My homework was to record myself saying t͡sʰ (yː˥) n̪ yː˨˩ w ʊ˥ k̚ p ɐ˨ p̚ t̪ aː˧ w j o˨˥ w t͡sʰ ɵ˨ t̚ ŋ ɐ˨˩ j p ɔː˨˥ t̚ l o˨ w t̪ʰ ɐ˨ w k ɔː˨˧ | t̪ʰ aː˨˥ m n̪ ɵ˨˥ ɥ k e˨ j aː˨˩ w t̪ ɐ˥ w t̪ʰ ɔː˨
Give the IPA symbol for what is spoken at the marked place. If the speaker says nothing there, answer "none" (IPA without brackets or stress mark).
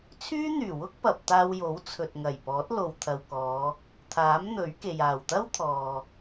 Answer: yː˥